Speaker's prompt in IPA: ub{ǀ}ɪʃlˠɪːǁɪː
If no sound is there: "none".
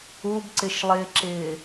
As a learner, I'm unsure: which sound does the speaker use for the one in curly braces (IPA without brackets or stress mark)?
ǀ